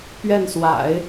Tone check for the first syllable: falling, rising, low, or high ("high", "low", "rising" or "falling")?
falling